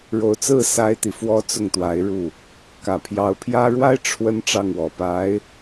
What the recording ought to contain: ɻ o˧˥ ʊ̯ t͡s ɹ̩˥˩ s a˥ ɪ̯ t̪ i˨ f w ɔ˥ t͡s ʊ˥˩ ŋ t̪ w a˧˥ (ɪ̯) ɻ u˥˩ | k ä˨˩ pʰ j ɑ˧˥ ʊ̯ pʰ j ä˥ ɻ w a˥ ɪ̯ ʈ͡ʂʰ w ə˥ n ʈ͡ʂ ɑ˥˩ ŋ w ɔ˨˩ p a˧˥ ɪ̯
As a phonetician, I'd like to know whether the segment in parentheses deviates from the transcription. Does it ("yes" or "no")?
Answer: no